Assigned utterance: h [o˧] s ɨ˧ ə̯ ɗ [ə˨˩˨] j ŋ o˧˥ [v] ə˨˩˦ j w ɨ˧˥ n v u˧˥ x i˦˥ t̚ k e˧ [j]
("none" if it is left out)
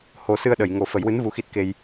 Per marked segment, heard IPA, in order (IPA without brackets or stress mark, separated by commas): o˧, ə˨˩˨, f, j